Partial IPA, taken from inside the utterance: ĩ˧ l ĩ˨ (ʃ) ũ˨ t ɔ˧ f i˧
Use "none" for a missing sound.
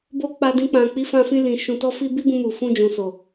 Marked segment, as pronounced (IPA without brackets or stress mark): ʃ